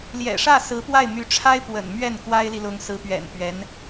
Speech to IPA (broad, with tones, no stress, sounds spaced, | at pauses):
l j ɛ̰˨˩ ʂ ä˥˩ s ɹ̩˧˥ p w a˥˩ ɪ̯ m y˧˥ ʈ͡ʂʰ a˥ ɪ̯ p w ə̰˨˩ n m ɥ ɛ˥˩ n k w a˥ ɪ̯ l i˨ l ʊ˧˥ ŋ s ɹ̩˧˥ p ɥ ɛ̰˨˩ n p ɥ ɛ˧˥ n